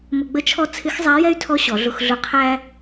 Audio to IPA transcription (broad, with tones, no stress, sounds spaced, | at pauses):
m ə˧ ɡ͡b ə˥ t͡ʃʰ ɔ˥ t͡sʰ ɪ˧˥ x zˤ æ˧˥ j ɛ˥ y̯ tʰ ɔ˧˥ ɕ ɔ˩˧ ɮ ʊ˧ x ɮ ʊ˧˥ qʰ æ˥